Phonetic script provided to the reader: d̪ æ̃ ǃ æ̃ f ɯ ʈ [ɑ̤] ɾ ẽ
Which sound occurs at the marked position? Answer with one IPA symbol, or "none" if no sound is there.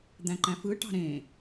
ɑ̤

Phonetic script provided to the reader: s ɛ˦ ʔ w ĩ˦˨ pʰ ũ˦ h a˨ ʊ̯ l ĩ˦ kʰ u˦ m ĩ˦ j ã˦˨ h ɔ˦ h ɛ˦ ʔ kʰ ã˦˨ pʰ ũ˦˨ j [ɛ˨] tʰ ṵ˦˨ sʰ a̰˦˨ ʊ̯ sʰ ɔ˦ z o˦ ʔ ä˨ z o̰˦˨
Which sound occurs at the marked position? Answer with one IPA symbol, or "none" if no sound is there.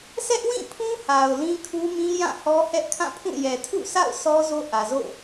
ɛ˨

